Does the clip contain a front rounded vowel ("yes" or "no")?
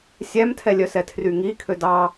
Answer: yes